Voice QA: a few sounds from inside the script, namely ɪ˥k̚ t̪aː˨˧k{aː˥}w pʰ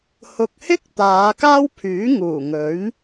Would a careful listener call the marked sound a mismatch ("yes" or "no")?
no